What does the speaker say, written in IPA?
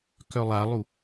k œ lˠ a lˠ u

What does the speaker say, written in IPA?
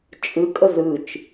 t͡ʃʼ ɨ kʼ ə z ɨ t͡ʃ

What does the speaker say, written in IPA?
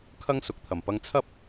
kʰ ɐ˥ ŋ s ʊ˨ k̚ t̪ʰ ɐ˨˩ m p ɐ˧ ŋ t͡sʰ ɐ˥ p̚

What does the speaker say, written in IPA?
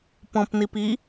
p ɔ̃ p n i p i

